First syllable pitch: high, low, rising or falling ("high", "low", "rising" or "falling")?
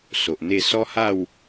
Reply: low